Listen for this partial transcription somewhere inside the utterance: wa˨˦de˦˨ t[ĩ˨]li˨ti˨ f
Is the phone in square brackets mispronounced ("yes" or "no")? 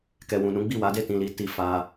no